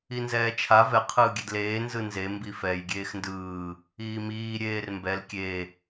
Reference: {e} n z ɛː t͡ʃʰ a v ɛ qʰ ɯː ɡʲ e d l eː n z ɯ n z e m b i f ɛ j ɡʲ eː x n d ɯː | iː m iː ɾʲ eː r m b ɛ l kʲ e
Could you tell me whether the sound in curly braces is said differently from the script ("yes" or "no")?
yes